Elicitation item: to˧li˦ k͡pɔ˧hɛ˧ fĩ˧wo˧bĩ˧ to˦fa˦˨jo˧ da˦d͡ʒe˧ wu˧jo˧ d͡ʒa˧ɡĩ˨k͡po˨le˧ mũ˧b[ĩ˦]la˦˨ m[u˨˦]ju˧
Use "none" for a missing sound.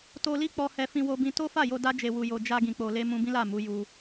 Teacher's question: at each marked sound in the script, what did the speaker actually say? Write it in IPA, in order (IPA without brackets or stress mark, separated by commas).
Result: ĩ˦, u˨˦